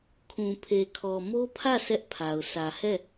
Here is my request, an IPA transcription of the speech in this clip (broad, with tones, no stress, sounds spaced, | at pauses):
kʰ ũ˨ pʰ e˨ kʰ ɔ˨ m o˦ pʰ ä˦˨ sʰ ɛ˦ ʔ pʰ a˨ ʊ̯ sʰ ä˨ h ɛ˦˨